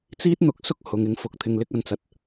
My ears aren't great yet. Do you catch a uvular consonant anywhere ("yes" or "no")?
no